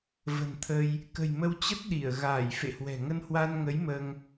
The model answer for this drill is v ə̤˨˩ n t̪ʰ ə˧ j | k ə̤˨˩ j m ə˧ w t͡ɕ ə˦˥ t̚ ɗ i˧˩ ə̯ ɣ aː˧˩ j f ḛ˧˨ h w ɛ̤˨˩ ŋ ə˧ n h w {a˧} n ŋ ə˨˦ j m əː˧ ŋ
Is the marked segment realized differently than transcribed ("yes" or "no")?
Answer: no